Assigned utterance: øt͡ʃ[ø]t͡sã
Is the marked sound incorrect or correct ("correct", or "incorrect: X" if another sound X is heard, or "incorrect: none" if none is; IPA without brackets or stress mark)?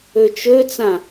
correct